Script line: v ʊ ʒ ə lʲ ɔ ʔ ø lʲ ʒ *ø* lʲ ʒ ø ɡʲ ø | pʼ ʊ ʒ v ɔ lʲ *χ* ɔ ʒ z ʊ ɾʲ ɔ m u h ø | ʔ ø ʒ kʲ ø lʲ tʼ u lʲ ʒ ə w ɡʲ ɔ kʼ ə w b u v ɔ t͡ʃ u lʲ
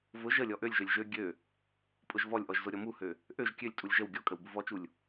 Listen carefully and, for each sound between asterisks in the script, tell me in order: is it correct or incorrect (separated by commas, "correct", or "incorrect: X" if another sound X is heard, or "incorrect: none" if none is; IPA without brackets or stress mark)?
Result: correct, incorrect: ʔ